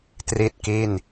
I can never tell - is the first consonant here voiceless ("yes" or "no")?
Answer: yes